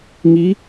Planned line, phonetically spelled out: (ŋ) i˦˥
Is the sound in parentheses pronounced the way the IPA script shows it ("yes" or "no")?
yes